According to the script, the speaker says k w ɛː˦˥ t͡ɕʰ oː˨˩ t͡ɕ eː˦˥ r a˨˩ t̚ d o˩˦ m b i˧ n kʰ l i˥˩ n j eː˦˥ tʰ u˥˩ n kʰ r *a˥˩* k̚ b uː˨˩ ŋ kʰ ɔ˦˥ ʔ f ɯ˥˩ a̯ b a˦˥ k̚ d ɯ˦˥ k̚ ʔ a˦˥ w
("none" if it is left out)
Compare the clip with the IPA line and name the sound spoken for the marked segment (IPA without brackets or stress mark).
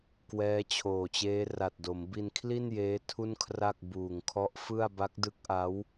a˥˩